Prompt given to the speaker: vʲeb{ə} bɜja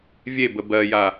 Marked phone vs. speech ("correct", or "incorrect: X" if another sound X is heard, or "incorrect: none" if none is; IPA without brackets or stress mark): correct